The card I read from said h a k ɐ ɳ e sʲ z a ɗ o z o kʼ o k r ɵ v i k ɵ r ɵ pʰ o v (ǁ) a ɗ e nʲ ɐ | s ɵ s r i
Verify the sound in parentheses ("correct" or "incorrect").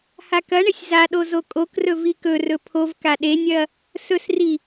incorrect